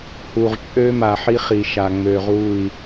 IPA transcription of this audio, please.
h u˨ ʁ t͡ʃʼ ø˦ m a˨ ħ i˦ χ i˨ ʃ a˨ ŋ͡m ø˨ ʁ u˦˨ i̯

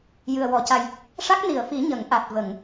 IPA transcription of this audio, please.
j ɨ˨˩ ə̯ w ɔ˨˩˨ c a˨˩ j | ʂ a˦˥ k̚ n i˨˩˨ ə̯ f i˨˩˦ ɲ ə˨˩˦ ŋ ʔ a˨˩ t̚ v ə˨˩˨ ŋ

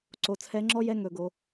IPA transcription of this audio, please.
ǀ o˩˧ t͡sʰ ɛ˨˥ ŋ͡ǁ ɔ˦˥ j ɛ˧˥˧ ŋ ɵ˩˧ ɡ o˩˧

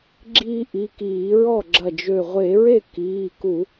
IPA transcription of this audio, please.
ɡ͡ǁ iː˦ ʔ i˩˧˩ k iː˧˩˧ ɹ ɔ˥˩ ɡ͡ǁ ɐ˧˩ d͡ʒ ø˧˩ ʁʷ e˧˩˧ ɹ e˥˩ k iː˩˧˩ k u˧˩˧

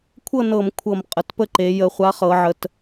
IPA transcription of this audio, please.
kʷʰ ɤ˥˨ n ɤ˧˩˧ m kʷʰ ɤ˧˩˧ m qʼ ə˨˩ t p ə˥˨ ǃ e˩˧ j ə˧˩˧ χʷ a˨˥ χ ɤ˩˧ ʕ ə˩˧ t

